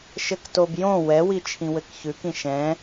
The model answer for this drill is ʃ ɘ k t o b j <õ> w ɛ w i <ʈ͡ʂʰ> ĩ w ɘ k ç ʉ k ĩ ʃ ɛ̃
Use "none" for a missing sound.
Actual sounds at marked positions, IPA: õ, t͡ʃʰ

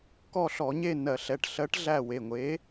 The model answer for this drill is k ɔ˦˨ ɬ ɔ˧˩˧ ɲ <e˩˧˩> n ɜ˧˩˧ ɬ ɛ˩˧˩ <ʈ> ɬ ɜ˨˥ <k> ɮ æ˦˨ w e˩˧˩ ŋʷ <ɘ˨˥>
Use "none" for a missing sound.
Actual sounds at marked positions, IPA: e˦˨, ʈ, ʈ, e˨˥

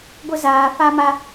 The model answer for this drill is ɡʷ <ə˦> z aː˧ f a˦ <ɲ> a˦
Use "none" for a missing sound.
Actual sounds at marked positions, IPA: ə˦, m

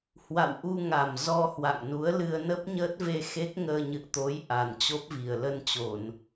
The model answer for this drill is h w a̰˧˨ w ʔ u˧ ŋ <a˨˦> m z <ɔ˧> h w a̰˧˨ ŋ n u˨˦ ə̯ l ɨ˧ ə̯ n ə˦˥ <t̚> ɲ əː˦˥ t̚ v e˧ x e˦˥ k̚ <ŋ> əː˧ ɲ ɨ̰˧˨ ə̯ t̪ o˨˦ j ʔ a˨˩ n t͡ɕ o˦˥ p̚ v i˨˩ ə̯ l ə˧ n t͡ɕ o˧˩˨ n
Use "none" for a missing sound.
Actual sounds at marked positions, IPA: a˨˩, ɔ˧, p̚, ŋ

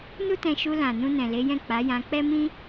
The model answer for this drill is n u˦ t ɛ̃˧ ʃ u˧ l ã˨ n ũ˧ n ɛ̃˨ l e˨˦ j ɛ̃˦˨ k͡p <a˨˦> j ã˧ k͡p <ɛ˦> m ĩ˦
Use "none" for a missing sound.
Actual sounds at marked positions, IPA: a˨˦, ɛ˦

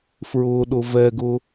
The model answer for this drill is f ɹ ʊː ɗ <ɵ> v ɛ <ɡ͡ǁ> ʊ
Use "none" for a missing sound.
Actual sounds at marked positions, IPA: ʊ, ɡ

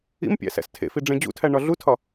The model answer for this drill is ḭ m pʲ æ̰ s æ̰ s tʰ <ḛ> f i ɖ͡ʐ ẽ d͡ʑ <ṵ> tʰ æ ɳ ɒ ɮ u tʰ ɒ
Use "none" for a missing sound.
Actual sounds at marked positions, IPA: ḛ, ṵ

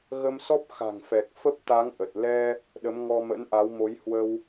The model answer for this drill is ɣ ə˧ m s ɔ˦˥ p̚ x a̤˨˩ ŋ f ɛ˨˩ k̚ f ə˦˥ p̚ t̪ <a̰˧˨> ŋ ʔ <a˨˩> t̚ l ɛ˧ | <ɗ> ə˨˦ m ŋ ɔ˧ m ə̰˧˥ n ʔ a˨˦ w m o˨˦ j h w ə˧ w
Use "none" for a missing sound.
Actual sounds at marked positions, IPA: a˨˦, ə˨˩, ɗ

